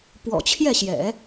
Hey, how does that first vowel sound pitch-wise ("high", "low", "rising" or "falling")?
low